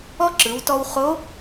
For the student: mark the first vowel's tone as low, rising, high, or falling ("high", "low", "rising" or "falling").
high